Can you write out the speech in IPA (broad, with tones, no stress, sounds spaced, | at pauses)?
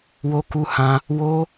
w o˦ k u˦ h ã˦ | w o˦